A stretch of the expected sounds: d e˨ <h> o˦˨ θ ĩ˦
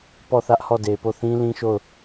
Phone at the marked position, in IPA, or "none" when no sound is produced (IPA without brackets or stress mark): p